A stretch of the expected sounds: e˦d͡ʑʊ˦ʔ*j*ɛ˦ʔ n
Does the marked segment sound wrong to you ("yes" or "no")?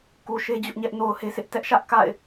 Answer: yes